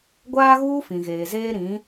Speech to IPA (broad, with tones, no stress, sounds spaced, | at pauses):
ɡʷ aː˦ ɣ uː˦ f ĩ˨ ɣ eː˨ z eː˦ ɾ ĩ˨˦